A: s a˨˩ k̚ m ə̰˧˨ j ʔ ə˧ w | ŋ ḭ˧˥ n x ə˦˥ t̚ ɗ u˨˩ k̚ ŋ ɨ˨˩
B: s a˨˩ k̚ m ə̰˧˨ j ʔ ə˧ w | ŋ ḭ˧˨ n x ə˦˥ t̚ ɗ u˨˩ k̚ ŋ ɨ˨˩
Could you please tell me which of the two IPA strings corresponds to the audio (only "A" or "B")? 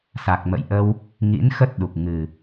A